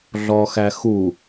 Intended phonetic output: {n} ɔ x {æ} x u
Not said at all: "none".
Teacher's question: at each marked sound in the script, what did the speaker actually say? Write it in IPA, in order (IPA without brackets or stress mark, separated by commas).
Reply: ɮ, æ